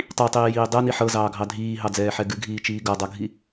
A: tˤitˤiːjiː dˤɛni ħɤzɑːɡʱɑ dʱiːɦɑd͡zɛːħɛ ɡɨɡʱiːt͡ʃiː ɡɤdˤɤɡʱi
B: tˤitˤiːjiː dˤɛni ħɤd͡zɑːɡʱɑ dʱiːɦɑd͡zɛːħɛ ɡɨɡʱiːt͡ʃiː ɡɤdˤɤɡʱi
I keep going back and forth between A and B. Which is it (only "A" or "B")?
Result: A